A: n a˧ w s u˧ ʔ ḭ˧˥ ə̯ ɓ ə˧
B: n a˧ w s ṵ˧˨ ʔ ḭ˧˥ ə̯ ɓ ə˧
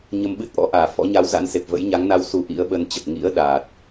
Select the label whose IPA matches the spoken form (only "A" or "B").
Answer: A